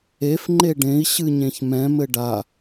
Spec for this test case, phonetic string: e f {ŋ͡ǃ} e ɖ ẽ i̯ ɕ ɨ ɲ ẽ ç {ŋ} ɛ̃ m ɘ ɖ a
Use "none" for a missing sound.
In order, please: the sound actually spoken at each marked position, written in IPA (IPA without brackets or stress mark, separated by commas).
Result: ŋ͡ǃ, m